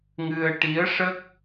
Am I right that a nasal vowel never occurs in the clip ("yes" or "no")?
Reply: yes